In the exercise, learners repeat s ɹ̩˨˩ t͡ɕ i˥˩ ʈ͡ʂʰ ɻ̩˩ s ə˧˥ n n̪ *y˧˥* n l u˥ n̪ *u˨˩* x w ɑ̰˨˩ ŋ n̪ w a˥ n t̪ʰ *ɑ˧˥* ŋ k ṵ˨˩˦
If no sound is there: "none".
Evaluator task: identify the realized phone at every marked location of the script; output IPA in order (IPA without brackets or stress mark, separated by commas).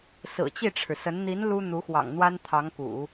i˧˥, u˧˥, ɑ˧˥